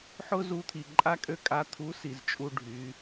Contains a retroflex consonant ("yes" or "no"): yes